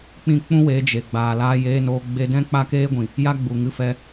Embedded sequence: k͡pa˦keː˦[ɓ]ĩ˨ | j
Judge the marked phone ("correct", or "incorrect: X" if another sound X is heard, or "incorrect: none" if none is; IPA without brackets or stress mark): incorrect: ɡʷ